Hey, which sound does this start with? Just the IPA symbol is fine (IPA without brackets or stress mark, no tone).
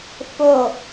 f